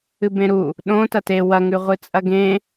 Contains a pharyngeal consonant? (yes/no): no